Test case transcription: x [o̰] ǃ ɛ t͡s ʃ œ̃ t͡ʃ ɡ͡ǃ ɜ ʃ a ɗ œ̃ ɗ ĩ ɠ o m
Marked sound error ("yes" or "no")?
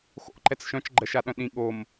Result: no